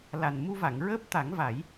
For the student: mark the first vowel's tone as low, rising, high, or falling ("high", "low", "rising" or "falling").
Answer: low